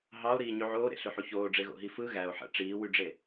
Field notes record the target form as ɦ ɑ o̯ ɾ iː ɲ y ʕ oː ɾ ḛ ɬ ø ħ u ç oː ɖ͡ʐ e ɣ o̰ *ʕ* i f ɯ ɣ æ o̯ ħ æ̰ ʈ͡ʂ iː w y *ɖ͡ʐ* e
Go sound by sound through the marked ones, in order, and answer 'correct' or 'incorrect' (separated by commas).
incorrect, correct